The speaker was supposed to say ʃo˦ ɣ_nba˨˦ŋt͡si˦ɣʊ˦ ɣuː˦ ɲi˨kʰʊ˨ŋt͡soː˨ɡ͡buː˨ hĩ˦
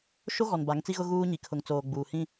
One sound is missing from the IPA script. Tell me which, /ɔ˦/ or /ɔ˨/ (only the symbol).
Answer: ɔ˨